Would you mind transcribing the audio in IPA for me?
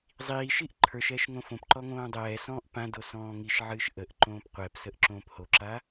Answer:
zˤiːʃiʔ ǃʰə˞ʃɛːʃ ŋõfõpǃɔ ŋõːdˤɛːsɔ̃ːʔ pãdo sɔ̃ːŋiʃʕɨːʃ ʔəʔ ǃõːpqʷɛpsəʔ ǁõːphoǁa

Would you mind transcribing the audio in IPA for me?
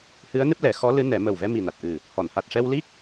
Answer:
hɨ˧˥ə̯nɨ˦˥p̚lɛ˨˩˦ xɔ˧˥lɨ˧˥nɛ˨˩˦ mə˨˩wvɛ˧ mi˨˩na˨˩t̚ ʔɨ˨˩ | hɔ˨˩˨nha˨˩t̚ʂɛ˧w li˦˥k̚

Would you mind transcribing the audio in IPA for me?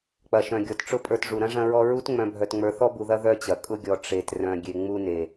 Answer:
k͡pɐ˩ʃœ̃˩ɡʲɔ˩tʈ͡ʂʊ˦ pʼə˞˨tʐu˩ɾɐ̃˥ ʐɐ̃˥ɹɔ˥ ɹu˦tŋ͡mœ̃˨bʱœ˨t ŋ͡mə˞˨θɔ˥bu˨ðɐ˦ ðœ˦t͡ɕɐ˩kʼʊ˦ɡʲɔ˨ ʈ͡ʂe˨t rœ̃˨ ɡʲe˨ŋ͡mu˦ne˩

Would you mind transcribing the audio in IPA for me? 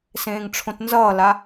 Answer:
sẽːŋʈ͡ʂʰõtnzʌːla

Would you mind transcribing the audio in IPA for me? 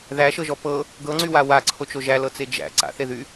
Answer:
ðæʃɤʒɔ pɤ | ɡɤŋ͡ǀywa waǀʰot͡ʃo ʒælɤt͡se d͡ʒæ̰ ǀa̰θeðy

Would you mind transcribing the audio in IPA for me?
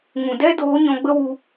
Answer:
ŋũ˨dɛ˦doː˨˦ ɲɔ̃˧ɡ͡bə˦wu˧

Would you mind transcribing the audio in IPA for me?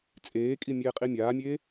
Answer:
t͡sʼeːkʼi mʲeːqʼimʲaːmʲeː

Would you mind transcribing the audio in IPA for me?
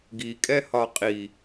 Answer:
ɡikʼɛhɒ qʼi

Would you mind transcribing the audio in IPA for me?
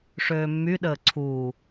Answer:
ʂøːmːyɗəː ǀʰuː

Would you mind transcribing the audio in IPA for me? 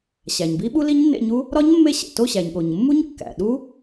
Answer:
ɕæ˩ɲbi˦˥ɓu˦˥ li˦˥ɲnːḛ˦˨ɲu˦˥ | ɾɒ˦˥ɲmːe˦˨ɕḛ˩to˦˨ ɕæ˩ɲɠo˩ɲmːu˦˥ɲ kːæ̰˩ɗu˦˥

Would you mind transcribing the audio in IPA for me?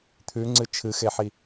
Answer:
t̪ʰʉŋ͡ǀɨ t͡ʃʰɨxeħi

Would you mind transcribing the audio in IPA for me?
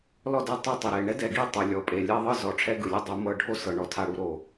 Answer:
lɔ˦˨dɛ˦ tˤɤ˦tˤi˨ɾe˦˨ ɳɛ˦dɛ˨ɡi˦˨tˤo˨ lʲɔ˨pʼe˨lʲa˦ ðˤɯ˦zɔ˨˦ ʈ͡ʂʰɛ˦ɡɯ˨lʲɯ˦ dˤu˨˦mɤ˦ ɖʱo˦sɤ˨ ɳɔ˨tʰa˨ɽu˨ ɾo˨

